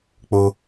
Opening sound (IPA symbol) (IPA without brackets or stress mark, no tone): k͡p